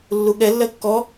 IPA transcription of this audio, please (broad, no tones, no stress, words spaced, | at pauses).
lːuɠɛ lːɜkːɔ